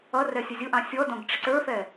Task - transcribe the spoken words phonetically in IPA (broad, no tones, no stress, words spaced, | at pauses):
ʌrɛ sʲʊzʲʊʔɑ̃ sʲɔdɔ̃ɡ ʈ͡ʂɪǀə˞fɛ